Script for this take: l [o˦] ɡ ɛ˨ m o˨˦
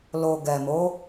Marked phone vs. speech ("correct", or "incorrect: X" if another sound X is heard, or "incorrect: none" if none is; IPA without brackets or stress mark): incorrect: o˨